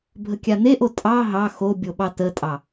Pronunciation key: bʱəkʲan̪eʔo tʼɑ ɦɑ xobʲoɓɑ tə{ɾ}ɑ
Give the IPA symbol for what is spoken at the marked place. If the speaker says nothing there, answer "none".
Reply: tʼ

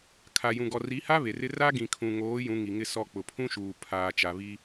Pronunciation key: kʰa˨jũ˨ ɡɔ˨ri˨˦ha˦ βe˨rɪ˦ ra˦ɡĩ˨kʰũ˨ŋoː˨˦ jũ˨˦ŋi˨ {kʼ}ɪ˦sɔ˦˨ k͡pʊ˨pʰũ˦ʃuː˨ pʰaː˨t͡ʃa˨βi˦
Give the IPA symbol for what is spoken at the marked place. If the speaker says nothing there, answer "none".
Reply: ŋ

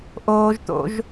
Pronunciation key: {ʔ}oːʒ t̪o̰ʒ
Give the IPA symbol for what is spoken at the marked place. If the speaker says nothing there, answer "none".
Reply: ʔ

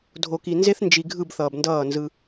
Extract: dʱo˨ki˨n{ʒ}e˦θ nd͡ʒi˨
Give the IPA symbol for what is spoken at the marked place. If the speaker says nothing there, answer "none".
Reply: z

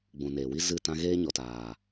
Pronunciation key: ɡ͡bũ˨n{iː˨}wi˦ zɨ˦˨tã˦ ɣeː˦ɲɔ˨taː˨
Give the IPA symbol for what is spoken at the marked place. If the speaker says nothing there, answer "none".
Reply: eː˨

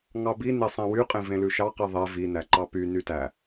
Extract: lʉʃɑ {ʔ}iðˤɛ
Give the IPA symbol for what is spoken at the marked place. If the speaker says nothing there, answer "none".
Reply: q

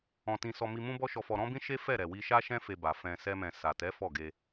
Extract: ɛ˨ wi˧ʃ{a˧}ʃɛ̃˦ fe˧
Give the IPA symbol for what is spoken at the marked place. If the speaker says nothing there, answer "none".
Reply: a˦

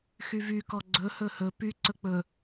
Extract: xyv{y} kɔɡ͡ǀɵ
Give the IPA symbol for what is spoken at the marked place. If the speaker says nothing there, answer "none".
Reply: y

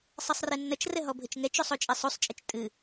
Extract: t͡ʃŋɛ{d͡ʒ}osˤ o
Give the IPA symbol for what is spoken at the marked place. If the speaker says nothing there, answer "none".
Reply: t͡ʃ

